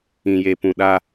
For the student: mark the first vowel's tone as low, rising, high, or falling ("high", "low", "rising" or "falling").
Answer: low